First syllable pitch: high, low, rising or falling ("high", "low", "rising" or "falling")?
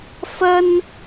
high